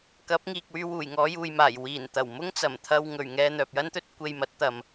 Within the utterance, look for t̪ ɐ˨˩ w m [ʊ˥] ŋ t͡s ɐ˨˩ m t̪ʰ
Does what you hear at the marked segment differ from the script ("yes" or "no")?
no